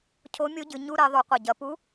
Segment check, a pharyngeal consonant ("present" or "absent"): absent